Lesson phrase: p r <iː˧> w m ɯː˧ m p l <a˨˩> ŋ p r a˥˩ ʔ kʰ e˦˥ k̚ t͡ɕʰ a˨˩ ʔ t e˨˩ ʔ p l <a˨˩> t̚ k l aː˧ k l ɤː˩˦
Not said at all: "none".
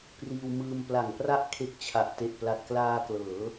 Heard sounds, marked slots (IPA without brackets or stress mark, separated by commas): iː˧, a˨˩, a˨˩